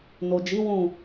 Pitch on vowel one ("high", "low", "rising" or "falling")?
low